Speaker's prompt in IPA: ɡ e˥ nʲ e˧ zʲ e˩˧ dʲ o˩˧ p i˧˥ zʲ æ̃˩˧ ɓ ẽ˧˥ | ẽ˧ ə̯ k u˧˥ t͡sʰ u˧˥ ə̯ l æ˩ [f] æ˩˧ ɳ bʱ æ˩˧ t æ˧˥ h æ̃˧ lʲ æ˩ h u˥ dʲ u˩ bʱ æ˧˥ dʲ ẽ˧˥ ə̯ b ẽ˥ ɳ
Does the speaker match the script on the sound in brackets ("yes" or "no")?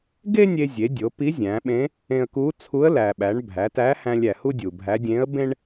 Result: no